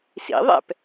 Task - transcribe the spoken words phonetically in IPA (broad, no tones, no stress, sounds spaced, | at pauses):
s ḭ ðˤ ɛ̰ p